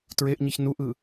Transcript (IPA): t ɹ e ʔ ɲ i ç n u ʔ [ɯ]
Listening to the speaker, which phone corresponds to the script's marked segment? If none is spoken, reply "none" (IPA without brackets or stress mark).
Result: ɯ